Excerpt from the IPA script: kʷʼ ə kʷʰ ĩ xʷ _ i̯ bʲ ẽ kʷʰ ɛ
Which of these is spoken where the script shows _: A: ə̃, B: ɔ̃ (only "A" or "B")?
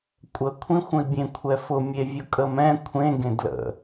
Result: A